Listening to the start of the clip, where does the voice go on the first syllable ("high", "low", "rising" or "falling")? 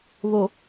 low